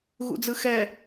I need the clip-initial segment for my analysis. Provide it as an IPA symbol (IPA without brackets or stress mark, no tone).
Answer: ɣ